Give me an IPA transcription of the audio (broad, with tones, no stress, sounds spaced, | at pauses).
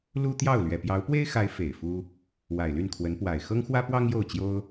l u˥ t̪ j ɑ˥˩ ʊ̯ l ɥ ɛ˨˩ p j ɑ˧˥ ʊ̯ p w e˥ ɪ̯ x a˧˥ ɪ̯ f e˨˩ ɪ̯ f u˥ | w a˨˩ ɪ̯ l y˥˩ n kʰ w ə˧˥ n p w a˨˩ ɪ̯ x ɤ˥ ŋ x w ä˥ p w ɑ˥ ŋ j o˥˩ ʊ̯ t͡ɕ j o˥ ʊ̯